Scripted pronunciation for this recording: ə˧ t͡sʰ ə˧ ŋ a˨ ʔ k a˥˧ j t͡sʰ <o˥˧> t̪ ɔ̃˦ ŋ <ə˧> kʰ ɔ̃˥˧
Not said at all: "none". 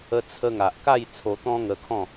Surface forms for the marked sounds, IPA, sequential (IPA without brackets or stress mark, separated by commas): o˧, ə˧